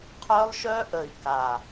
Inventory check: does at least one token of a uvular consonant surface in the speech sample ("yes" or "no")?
yes